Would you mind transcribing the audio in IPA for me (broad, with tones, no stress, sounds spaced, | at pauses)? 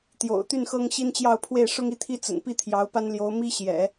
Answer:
t̪ j o̰˨˩ ʊ̯ t̪ y˥˩ n x ɤ˥ ŋ ɕ i˥ n t͡ɕ j ɑ˥˧ ʊ̯ pʰ w e˥˩ ɪ̯ ʂ ʊ˥ ŋ i˥˧ t̪ʰ i˥˩ t͡s ə̰˨˩ n p i˥˩ t̪ʰ j ɑ˧˥ ʊ̯ p a˥ n l j o˧˥ ʊ̯ m i˥ ɕ j ɛ̰˨˩˦